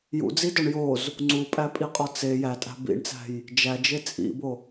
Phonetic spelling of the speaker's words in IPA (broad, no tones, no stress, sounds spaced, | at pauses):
j ṵ d͡z i d ɒ ɳ j o z | ŋ͡ǀ u pʼ æ pʼ i qʼ ɒ t͡s e j æ tʼ æ̤ b ḭ ɳ t͡s æ̤ j | d͡ʒ æ d͡ʒ e t͡sʼ ḭ b o